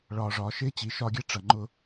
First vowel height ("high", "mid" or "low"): low